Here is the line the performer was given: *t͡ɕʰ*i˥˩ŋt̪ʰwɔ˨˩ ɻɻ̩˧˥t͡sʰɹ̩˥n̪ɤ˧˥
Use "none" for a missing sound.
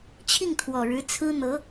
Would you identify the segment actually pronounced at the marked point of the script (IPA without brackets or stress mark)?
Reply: t͡ɕʰ